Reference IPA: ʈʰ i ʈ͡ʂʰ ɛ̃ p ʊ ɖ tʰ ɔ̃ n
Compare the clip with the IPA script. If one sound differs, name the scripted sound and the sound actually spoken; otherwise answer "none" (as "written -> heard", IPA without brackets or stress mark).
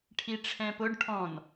tʰ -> ʈʰ